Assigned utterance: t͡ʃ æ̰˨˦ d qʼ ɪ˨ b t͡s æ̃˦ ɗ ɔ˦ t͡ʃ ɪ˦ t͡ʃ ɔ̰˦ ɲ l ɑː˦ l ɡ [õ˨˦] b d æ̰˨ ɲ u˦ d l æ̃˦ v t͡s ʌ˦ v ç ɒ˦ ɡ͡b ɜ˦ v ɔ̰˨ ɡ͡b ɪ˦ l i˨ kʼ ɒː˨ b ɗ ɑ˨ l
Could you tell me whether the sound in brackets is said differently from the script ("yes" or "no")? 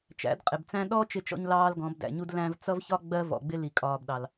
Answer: yes